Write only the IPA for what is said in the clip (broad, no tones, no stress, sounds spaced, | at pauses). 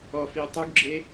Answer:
ɔ f i o̯ tˤ u ɡ ɡ͡ǁ e